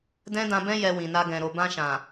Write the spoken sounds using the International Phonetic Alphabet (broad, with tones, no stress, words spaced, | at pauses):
dɛ̃˦dã˧bɛ̃˦ jɛ˧wĩ˨na˧ ɡɛ̃˨ ɾo˨bã˧ʃã˨